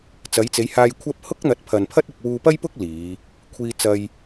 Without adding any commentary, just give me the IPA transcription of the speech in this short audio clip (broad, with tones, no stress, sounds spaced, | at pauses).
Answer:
t͡s ɐ˨˧ j t͡s e˨˧ j h aː˧ j kʷʰ ɐ˥ p̚ h ʊ˥ k̚ n̪ ɐ˨˥ t̚ pʰ ɐ˨ n pʰ ɐ˥ t̚ ɪ˧ k̚ w uː˧ p ɐ˥ j p ʊ˥ k̚ l iː˨˧ | kʷʰ iː˥ t͡s ɐ˥ j